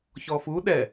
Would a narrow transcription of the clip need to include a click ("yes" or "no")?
no